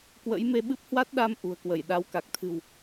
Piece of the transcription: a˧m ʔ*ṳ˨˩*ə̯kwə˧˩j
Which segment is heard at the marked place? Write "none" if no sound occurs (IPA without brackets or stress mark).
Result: ṳ˨˩